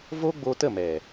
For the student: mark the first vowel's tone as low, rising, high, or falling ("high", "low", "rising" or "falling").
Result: high